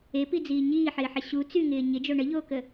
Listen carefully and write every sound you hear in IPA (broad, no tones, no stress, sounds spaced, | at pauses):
e p i d͡z iː ɲ iː ħ ɪː ħ ɪ ɕ u t͡s y ŋ ɪː ɲ ɪ d͡ʒ o ɳ ə ʎ oː k ə